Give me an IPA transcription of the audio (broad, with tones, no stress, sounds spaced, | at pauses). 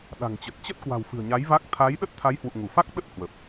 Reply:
ɗ a̤˨˩ ŋ t͡ɕ ə˨˩ t̚ t͡ɕ ə˦˥ t̚ k w a̤˨˩ w f ɨ̤˨˩ ə̯ ɲ a˨˦ j v a˦˥ k̚ t̪ʰ a˨˦ j ɗ ə˦˥ t̚ t̪ʰ a˨˦ j h w ṵ˧˨ ŋ u˧˩ f a˦˥ k̚ ɗ ə˦˥ t̚ h w ə˨˩ p̚